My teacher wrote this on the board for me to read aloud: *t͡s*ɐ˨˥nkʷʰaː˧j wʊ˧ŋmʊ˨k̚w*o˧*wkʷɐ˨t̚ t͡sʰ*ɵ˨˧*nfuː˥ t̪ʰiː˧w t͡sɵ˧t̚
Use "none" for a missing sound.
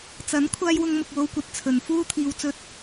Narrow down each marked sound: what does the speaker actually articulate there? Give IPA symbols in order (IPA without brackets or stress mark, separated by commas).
t͡s, o˧, ɵ˨˧